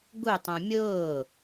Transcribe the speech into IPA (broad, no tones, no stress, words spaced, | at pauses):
ɡu tˤũmʲʊː